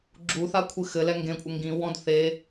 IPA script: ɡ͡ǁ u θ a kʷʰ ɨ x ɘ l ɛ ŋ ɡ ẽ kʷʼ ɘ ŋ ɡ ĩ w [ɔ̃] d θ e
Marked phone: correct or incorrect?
correct